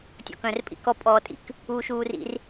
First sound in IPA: tʲ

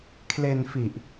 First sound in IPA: kʰ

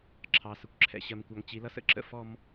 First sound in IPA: ǁʰ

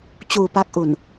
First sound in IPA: t͡ɕ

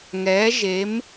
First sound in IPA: ŋ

